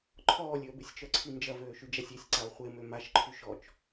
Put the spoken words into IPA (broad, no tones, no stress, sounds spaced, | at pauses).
ǃʰ ɔː lʲ ø ə̯ b ɪ sʲ t͡ʃ œ ǀʰ i n d͡ʒ ɐ v øː ʃ y d͡ʒ a sʲ i sʲ ǀ a ʊ̯ χʷ e m ø m a ʃ ǃʰ y ʃ ɔ t͡ʃ